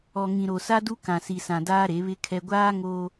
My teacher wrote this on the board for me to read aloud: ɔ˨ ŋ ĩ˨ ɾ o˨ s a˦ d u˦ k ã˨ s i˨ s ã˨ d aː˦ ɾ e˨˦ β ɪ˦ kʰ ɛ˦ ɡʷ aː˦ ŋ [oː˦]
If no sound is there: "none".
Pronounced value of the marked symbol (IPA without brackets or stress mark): oː˦